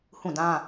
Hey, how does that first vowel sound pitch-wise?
falling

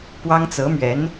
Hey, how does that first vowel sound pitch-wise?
high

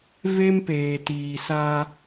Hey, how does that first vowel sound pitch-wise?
high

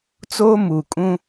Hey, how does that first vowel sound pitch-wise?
high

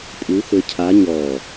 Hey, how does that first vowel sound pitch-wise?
rising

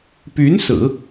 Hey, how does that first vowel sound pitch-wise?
rising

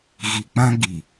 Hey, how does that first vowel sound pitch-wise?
low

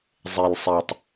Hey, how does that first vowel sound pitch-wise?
low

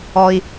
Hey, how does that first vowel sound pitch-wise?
high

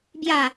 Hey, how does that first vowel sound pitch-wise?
falling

